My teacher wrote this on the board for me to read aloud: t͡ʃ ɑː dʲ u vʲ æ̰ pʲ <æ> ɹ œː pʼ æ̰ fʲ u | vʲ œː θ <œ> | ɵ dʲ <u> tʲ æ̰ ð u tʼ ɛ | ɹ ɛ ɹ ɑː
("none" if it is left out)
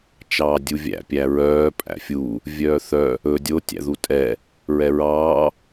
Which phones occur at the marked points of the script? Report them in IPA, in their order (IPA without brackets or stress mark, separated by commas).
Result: æ, œ, o